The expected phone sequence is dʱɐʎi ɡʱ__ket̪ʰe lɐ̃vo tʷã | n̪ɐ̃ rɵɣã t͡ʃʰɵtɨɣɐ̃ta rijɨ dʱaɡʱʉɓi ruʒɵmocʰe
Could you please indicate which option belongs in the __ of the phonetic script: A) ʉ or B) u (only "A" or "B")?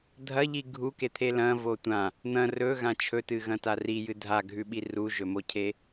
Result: B